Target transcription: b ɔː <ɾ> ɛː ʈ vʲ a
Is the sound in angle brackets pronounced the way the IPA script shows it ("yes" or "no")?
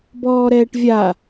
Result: yes